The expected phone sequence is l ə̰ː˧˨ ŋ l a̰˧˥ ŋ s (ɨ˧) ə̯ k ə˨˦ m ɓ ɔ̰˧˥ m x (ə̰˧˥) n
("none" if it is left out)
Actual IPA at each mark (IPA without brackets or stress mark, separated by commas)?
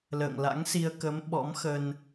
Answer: i˧, ə˧